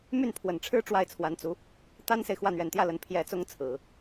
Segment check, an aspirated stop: present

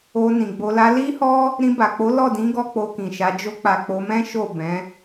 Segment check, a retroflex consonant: absent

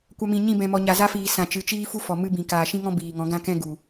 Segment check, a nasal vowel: present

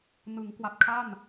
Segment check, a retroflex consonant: absent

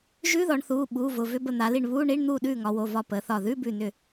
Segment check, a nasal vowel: absent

